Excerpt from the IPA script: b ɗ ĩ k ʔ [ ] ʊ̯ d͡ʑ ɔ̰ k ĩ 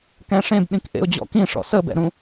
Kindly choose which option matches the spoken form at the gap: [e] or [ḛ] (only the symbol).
ḛ